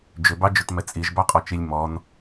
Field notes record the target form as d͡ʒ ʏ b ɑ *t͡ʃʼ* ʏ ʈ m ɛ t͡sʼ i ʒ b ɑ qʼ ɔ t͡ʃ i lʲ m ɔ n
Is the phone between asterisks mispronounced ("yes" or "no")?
yes